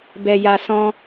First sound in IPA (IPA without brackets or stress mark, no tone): b